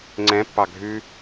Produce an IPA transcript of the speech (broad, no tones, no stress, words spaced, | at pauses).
ŋ͡ǀɛ̃pːɑ ɡʱʉ